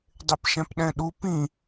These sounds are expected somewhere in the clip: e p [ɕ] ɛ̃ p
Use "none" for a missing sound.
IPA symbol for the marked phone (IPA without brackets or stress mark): ʃ